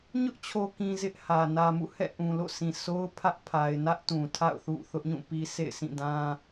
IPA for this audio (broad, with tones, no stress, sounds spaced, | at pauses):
ɲ ʊ˦ ʔ t͡ɕʰ o˨ k ĩ˨ z ɪ˦ ʔ h ä˨ n ä˨ m ṵ˦˨ h ɛ̰˦˨ ʔ ũ˨ l o̰˦˨ s ĩ˨ sʰ o˦ ʊ̯ pʰ ä˦ ʔ pʰ a˨ ɪ̯ n ä˦ ʔ t ũ˨ tʰ a̰˦˨ ʊ̯ θ ṵ˦˨ θ ʊ˦ ʔ ɲ ũ˦˨ p i˦ sʰ ḛ˦˨ ɪ̯ sʰ ĩ˦˨ d ã˦